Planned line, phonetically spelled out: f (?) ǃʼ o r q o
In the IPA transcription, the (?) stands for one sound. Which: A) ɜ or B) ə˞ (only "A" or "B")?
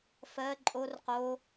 A